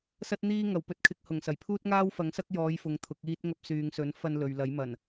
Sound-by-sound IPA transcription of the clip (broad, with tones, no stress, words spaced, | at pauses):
sɐ˥t̚n̪iː˥ ŋɐ˨˩wpɵ˧t̚kʰɪ˧k̚hʊ˨˩ŋ sɐ˨˩jpʰuː˥t̚ŋaː˥w fɐ˨˥ŋsɐ˥k̚jɔː˨˧jfʊ˨ŋ t̪ʰʊ˨˥k̚iː˥t̚ŋɐ˥p̚ syː˨ŋsɵ˨˥nfɐ˧n lɵ˨ɥlɐ˨˥jmɐ˨˩n